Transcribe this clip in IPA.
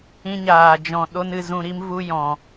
ĩ˦ ɲ aː˧ d͡ʒ ɔ̃˧ ɗ o˦ n ɨ˧ z ũ˧ ɾ i˦ m v u˦ j ɔ̃˧

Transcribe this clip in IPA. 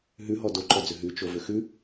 ɦ ʉ ɦ ɔ d o ǃ ɔ d͡z ʏ ɦ ʉ t͡ʃ o v ʏ x ʉ

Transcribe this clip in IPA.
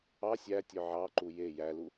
ɑ sʲ æ tʲ œ ʕ ɑ ǃ u j e j æ l u

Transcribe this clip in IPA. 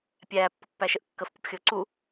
pʲ æː pː ʊ pː æ ʃ ə ʔ kː ə f pʲ ʊ p xʲ ʊː ǀ u

